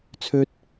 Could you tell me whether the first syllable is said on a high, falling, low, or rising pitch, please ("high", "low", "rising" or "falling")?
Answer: high